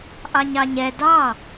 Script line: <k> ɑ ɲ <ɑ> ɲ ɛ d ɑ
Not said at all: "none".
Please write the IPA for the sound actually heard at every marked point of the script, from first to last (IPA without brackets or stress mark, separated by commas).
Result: ʔ, ɑ